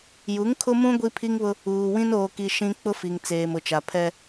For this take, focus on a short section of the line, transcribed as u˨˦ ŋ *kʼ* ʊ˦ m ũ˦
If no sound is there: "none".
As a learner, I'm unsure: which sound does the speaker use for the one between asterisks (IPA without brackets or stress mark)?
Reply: kʰ